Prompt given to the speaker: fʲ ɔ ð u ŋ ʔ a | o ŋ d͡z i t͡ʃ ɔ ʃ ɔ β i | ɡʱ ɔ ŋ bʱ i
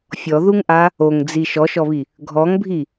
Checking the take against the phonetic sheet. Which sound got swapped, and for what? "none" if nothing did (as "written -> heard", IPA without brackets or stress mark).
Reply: t͡ʃ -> ʃ